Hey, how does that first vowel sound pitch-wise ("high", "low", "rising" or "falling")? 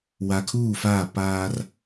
low